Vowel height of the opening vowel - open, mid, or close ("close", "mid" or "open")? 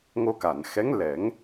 mid